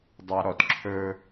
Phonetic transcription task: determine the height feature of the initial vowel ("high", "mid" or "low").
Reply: low